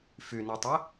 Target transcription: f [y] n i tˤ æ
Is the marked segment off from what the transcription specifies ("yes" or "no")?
no